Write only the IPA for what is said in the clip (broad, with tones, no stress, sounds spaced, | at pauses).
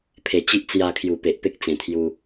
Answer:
pʰ e˨˩ t͡ɕ i˦ ʔ t͡s j a˧ kʰ j u˨˩ p e˨ ʔ p e˦ k̚ t͡s ẽ˨˩ t̪ʰ j u˧